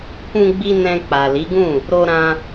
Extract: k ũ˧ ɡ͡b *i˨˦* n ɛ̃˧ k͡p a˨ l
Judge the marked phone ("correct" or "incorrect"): incorrect